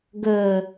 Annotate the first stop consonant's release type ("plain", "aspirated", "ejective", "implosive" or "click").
plain